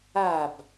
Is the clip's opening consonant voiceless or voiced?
voiced